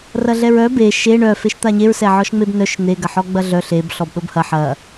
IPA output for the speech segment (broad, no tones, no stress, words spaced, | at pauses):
rɐɮɛɹœ be ʃe ɳœ feʃt̪aɲeɹ sɛʕɔʃŋ͡mebnœʃ n̪e ɡɐħɔɡ͡bɐɮœ ɬeb ɬɔbɗobhɐ ħɐ